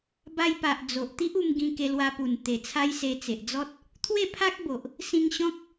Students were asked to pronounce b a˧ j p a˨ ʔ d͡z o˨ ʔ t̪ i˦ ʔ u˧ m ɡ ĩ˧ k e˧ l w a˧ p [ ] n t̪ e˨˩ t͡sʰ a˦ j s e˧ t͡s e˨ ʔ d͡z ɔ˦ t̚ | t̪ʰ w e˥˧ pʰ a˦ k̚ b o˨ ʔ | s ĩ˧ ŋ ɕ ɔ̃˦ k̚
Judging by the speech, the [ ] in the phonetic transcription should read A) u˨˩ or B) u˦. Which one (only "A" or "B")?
A